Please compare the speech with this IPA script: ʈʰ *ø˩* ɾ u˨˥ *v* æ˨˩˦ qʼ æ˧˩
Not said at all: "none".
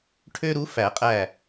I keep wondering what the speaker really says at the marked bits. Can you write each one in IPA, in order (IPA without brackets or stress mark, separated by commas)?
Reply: ø˦, f